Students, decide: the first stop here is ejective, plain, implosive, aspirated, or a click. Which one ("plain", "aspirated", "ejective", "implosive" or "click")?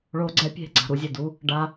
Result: click